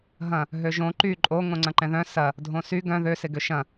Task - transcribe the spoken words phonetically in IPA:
ɦɐ̃ | ɦøʒõ ǃy ǃʼo ŋõŋ͡ǀɐ̃ǃɛ̃ðœ̃ sɐ | dʱõsy ɡœ̃ ðøsɪɡø ʃɐ̃

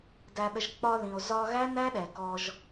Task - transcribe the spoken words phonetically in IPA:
dæ˨ɗə˨ʒ k͡pɒ˧ðĩ˨o̯ zɒ˧ɣæ˦næ˦ɗɛ˨ kɔ˧ʒ

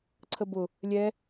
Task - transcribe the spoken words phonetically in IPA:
ǀʰəbʊ | lʲɛ

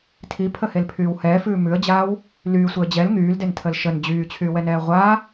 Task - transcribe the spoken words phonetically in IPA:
tʰipʰəhelpʰyːw hɛːfʉː mʉə̯d͡ʑaːw | lyːsʷeə̯ d͡ʑɛl ŋyːldentʰəl ʃən d͡ʑyːt͡ɕʰyːwɛnɛː ʁʷa

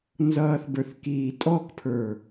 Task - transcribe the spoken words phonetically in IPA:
nzʌːθbə˞θkiː tʼɔkpʰə˞

